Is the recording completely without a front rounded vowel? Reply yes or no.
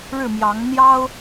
yes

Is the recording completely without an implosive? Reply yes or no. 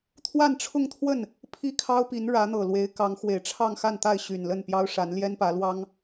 yes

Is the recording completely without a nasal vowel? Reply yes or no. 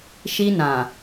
no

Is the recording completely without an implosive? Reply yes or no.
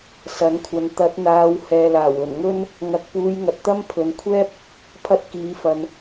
yes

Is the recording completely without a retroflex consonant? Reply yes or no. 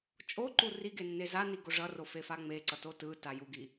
no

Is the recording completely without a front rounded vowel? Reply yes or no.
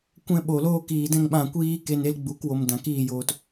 yes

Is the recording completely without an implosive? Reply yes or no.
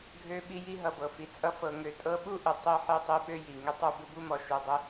no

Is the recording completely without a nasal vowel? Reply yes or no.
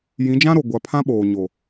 no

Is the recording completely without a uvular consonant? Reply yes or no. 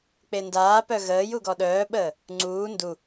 yes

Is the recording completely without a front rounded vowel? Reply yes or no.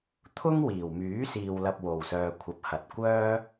no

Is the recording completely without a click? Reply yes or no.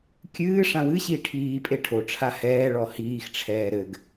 yes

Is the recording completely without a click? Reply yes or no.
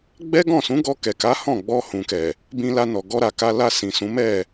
yes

